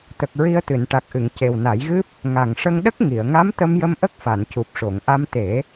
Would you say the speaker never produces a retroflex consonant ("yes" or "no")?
no